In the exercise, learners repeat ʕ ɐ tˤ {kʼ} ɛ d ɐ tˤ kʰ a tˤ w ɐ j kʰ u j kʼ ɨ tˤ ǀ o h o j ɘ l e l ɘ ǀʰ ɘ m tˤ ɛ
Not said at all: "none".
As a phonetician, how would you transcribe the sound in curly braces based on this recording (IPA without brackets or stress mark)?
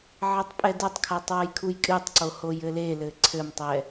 pʼ